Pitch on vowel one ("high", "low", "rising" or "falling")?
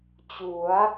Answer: rising